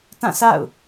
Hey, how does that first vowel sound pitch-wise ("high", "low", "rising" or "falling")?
falling